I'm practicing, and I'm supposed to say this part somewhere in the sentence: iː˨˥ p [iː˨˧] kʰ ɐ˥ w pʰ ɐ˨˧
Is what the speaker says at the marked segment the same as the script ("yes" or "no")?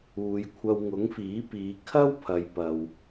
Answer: yes